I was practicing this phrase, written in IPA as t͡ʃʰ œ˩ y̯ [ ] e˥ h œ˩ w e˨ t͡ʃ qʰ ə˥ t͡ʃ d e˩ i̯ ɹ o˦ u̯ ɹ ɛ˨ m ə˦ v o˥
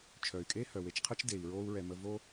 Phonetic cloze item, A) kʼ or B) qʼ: A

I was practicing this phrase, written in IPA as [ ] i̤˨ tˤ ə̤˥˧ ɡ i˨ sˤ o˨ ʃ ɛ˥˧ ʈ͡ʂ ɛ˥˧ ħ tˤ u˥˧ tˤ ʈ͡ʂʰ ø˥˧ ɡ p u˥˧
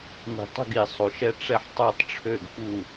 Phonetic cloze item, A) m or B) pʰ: A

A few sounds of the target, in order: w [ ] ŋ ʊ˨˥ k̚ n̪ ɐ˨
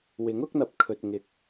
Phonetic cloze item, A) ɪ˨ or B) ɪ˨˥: B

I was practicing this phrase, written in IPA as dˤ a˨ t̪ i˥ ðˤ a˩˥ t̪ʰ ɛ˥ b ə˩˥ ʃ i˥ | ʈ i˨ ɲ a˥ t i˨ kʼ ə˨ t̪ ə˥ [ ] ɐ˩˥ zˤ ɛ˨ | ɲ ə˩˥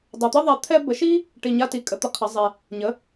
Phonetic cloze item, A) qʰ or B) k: A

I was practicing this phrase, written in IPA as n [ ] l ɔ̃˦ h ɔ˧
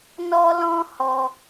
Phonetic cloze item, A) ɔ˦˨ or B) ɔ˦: B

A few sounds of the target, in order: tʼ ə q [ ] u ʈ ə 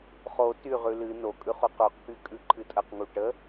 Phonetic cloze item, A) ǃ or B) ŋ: B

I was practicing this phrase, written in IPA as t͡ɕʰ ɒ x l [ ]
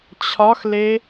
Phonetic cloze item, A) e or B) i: A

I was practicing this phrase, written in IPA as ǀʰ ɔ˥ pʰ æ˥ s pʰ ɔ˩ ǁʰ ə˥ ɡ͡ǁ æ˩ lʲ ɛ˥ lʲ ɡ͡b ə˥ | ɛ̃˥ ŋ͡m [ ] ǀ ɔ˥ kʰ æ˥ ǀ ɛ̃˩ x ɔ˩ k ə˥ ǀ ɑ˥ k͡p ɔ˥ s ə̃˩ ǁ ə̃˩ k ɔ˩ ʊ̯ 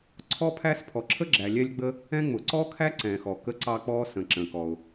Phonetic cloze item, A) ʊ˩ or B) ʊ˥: A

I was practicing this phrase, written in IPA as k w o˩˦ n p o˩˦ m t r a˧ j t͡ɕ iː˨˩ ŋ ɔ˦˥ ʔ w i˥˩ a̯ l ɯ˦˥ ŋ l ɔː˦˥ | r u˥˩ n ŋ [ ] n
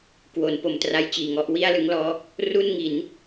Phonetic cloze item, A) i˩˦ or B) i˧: A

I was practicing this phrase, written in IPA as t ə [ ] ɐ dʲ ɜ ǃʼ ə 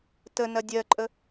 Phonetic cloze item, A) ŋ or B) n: B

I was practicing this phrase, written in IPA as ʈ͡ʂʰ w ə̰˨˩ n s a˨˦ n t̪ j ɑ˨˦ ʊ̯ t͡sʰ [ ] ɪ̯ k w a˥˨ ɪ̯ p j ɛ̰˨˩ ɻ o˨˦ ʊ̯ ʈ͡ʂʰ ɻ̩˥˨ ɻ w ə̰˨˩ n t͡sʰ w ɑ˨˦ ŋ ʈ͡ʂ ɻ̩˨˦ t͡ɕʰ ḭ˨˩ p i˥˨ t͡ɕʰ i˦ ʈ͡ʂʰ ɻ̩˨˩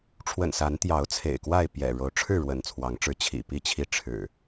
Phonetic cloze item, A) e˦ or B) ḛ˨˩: B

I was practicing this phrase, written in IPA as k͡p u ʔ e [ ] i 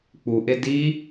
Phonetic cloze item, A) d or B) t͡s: A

